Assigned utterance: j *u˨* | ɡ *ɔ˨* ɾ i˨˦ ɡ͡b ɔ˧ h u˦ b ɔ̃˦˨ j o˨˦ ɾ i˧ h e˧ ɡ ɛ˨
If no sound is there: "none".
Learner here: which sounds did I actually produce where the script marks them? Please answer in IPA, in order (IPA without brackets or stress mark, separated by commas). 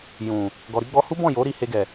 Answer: ũ˨, ɔ˨